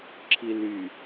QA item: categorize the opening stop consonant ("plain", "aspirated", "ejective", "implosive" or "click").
click